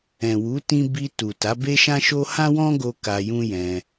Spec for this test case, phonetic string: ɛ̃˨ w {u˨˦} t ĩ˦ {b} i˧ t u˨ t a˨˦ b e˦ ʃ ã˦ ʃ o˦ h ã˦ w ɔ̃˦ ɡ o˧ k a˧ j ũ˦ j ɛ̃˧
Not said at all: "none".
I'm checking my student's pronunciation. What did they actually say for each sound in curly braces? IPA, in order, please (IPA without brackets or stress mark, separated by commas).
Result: u˨˦, b